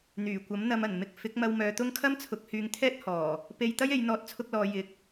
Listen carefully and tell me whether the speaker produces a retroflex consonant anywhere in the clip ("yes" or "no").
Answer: no